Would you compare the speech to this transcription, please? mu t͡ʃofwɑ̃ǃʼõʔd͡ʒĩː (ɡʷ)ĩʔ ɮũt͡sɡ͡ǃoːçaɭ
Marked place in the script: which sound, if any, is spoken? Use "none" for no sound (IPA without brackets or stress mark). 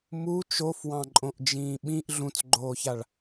ɓ